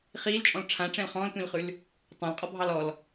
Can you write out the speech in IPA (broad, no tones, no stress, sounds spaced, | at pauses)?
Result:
χ iː l t͡ʃʼ ɔ̃ l ʈ͡ʂʰ ã ʈ͡ʂ ɛ̃ l χ ɔ̃ː l tʷ ĩ l χ ʉ l | tˤ ɑ̃ l qʼ ɔ bʱ ɑ l ɔ l